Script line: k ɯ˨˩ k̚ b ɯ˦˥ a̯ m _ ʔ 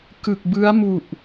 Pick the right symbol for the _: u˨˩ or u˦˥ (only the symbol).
u˨˩